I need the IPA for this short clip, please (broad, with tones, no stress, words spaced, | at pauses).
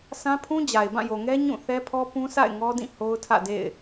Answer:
sã˦pʰũ˦d͡ʑa˨ɪ̯bã˦˨ jo˨ŋɛ˦ ɲũ˦˨θɛ˦pʰɔ˦ pũ˦sa̰˦˨ɪ̯ ŋɔ˦dĩ˦˨ ho˦ʊ̯tʰä̰˦˨dḛ˦˨ɪ̯